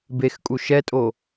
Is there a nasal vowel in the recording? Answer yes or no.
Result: no